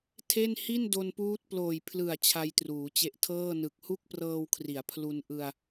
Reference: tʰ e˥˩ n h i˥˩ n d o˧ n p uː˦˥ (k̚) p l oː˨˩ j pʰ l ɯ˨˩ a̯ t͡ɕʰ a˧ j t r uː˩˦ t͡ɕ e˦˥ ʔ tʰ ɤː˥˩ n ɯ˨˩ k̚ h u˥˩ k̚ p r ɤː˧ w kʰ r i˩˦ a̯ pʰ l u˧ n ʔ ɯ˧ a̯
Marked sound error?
yes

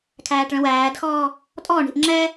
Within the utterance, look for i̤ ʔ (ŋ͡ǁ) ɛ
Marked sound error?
no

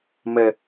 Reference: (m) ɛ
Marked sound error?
no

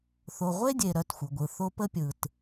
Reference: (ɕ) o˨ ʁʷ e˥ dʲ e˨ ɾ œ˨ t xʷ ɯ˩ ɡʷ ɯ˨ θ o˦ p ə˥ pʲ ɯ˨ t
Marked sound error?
yes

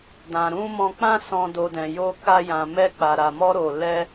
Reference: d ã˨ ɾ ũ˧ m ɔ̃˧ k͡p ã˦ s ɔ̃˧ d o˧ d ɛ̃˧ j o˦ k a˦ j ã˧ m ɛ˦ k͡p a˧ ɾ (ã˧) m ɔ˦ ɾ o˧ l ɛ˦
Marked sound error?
yes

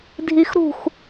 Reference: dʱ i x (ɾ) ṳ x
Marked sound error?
no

